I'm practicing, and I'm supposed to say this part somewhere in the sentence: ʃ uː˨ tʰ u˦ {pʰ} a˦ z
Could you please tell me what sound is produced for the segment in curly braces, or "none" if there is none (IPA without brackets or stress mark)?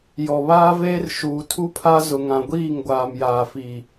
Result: pʰ